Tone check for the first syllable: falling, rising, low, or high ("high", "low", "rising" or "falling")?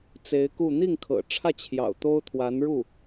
rising